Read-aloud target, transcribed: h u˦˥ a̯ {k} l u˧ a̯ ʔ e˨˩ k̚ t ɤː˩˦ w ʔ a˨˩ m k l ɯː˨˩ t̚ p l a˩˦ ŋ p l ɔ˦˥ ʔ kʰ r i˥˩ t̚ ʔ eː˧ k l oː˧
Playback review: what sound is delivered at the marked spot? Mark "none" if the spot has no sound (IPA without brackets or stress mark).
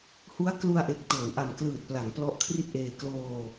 k